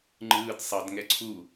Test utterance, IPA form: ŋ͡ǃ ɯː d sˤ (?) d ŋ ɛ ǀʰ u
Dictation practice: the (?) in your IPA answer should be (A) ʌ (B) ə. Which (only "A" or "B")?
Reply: A